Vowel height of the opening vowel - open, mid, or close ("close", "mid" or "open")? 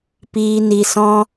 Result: close